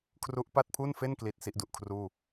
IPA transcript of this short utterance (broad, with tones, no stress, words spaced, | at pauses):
kʰru˦˥ʔpa˥˩t̚pʰu˥˩nfe˥˩n kli˦˥t̚si˦˥ʔdu˨˩ʔkʰruː˥˩